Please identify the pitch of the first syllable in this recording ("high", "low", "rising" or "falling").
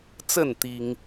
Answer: falling